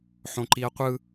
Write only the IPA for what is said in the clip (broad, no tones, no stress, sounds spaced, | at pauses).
ħ õ ǃ i ɐ̯ qʷ ɯ